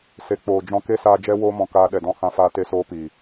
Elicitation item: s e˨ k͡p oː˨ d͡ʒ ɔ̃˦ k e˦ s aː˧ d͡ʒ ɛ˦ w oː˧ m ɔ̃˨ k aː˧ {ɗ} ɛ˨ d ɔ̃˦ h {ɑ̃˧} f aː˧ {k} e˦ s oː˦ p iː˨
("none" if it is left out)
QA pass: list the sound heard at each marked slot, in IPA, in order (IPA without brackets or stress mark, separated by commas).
ɗ, ã˧, t